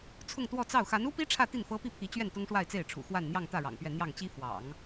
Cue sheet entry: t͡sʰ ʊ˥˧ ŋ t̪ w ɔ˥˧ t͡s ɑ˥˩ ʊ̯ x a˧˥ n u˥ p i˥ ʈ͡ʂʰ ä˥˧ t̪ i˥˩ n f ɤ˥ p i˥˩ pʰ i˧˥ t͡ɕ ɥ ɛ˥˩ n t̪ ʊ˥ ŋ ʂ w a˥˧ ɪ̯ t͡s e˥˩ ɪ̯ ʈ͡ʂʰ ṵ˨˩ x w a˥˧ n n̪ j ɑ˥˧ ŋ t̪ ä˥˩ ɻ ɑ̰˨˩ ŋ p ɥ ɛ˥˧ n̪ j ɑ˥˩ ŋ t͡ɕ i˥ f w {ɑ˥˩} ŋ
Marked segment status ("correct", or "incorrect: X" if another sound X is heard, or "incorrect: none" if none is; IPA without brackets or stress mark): incorrect: ɑ̰˨˩˦